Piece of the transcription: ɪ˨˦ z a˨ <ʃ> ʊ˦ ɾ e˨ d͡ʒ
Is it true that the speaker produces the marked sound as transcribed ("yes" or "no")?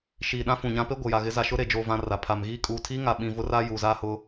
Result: yes